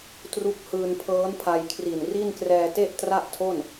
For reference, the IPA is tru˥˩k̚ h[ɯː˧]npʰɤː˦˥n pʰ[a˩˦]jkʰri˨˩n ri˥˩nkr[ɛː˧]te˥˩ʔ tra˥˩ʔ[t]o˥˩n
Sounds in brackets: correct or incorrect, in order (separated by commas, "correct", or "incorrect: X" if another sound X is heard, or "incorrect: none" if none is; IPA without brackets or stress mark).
correct, incorrect: a˧, correct, incorrect: tʰ